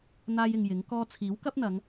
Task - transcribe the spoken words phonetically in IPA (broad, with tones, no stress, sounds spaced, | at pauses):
n̪ aː˥ j ɪ˧ ŋ j ɪ˨˥ ŋ k ɔː˧ t͡sʰ iː˨˥ w k ɐ˥ p̚ n̪ ɐ˨˧ ŋ